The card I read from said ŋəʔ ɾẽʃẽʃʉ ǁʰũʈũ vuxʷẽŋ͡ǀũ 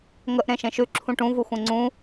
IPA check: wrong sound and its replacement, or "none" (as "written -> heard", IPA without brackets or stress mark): none